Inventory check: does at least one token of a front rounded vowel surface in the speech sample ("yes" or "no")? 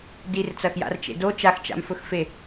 no